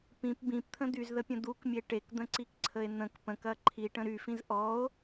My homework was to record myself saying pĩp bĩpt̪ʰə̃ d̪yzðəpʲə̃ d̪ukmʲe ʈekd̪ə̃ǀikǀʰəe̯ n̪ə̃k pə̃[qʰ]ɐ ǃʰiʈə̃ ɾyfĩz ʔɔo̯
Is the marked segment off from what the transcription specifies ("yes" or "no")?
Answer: yes